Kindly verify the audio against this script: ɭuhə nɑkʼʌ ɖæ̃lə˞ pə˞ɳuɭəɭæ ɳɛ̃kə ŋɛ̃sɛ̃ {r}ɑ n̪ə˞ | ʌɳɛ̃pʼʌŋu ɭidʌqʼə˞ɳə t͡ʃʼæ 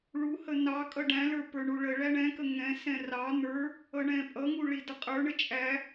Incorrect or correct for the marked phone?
correct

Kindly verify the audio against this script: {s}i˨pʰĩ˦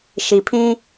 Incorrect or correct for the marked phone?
incorrect: ʃ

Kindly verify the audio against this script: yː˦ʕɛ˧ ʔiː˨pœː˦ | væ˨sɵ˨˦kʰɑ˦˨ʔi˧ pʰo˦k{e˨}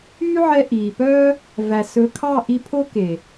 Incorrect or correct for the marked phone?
correct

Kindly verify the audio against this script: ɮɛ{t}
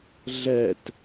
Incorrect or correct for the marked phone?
correct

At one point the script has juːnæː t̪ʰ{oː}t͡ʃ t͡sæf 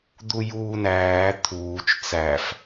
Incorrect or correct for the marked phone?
incorrect: uː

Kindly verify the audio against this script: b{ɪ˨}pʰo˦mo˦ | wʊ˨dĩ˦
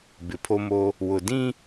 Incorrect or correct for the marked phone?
correct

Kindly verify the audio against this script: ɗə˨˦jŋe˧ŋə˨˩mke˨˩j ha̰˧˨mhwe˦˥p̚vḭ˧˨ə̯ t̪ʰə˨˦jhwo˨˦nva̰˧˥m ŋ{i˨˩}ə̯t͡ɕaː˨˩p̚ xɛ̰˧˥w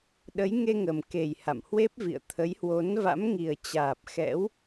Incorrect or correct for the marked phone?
correct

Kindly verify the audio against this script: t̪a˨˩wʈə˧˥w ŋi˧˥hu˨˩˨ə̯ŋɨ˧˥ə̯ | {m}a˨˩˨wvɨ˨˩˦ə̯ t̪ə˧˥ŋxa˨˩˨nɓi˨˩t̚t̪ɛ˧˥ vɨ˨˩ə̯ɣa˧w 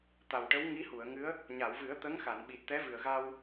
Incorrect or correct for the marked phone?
incorrect: ɲ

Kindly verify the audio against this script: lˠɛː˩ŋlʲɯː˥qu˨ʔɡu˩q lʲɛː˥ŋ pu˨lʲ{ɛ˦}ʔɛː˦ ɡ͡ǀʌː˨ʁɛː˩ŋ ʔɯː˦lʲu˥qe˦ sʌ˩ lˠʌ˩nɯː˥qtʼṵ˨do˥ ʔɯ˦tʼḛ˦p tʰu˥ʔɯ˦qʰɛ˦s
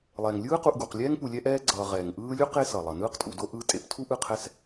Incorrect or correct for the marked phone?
correct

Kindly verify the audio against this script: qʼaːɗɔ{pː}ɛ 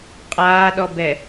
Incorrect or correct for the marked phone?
incorrect: b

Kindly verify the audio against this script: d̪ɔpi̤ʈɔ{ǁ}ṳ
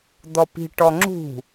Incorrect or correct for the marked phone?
incorrect: ŋ͡ǁ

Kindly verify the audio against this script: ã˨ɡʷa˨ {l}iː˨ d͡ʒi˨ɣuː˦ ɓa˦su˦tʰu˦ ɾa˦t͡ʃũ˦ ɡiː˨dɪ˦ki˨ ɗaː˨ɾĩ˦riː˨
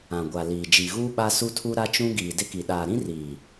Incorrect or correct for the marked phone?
correct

